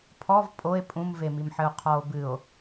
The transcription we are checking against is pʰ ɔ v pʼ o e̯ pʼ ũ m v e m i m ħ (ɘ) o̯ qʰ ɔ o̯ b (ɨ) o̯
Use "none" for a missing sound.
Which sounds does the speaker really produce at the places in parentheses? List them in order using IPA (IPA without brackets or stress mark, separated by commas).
ɘ, ɨ